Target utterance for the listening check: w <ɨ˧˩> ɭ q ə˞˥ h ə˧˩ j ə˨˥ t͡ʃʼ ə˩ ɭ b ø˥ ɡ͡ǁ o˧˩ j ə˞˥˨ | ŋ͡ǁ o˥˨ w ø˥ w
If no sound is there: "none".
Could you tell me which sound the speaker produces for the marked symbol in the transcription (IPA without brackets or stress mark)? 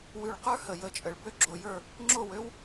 ʉ˧˩